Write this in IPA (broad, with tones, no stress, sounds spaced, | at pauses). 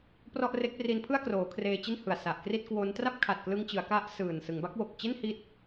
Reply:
p r ɔ˥˩ ʔ r e˦˥ k̚ p r i˦˥ n pʰ ɯ˥˩ a̯ k r oː˩˦ kʰ r eː˧ t͡ɕ i˥˩ n h ɯ˨˩ a̯ s a˨˩ ʔ k r i˥˩ t̚ k w o˦˥ n t r a˥˩ p̚ kʰ a˨˩ t̚ k l ɯ˧ ŋ t͡ɕ ɯ˩˦ a̯ k a˦˥ ʔ s ɯː˨˩ n s ɯ˩˦ ŋ b a˦˥ k̚ w o˨˩ k̚ t͡ɕ e˥˩ n h i˦˥ t̚